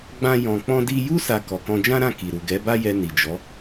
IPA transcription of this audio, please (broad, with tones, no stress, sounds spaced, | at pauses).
ɡ͡b ã˦ j ɔ̃˧ k͡p ɔ̃˦ d i˦ j u˦ s a˧ k ɔ˨ k ɔ̃˧ d͡ʒ ã˦ ɾ ã˦˨ k i˨ ɾ u˨ ɡ ɛ˨˦ b a˦ j ɛ˧ n i˨ d͡ʒ ɔ˨˦